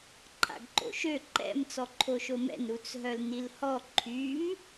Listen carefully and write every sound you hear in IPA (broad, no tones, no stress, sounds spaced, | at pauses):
ǃʰ a̰ ɡ ǃ o̰ ʃ ø ǃ ɛ̰ m t͡s ɔ ǃʰ o ʃ o m ɛ̰ n ɾ u t͡s ɦ œ l n i l h ɔ ǃʰ y m